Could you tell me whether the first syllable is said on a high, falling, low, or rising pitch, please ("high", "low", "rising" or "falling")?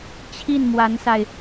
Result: falling